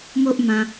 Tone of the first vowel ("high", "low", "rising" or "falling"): high